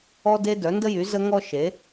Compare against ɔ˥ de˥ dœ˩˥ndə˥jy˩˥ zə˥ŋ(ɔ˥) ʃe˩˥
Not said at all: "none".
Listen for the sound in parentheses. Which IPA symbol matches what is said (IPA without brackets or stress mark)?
ɔ˥